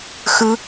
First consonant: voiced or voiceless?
voiceless